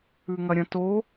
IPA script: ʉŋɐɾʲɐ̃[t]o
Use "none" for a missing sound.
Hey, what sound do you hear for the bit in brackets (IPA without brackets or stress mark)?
t